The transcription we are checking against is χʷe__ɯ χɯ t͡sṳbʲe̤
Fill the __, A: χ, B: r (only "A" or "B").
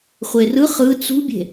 B